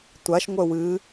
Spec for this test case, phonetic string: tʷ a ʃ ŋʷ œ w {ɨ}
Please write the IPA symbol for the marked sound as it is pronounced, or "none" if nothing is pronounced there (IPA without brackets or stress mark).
ɨ